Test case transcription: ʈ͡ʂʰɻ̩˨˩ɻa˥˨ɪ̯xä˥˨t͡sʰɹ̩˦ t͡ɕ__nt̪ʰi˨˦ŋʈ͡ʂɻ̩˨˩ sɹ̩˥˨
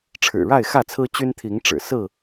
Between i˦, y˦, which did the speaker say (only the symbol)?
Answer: y˦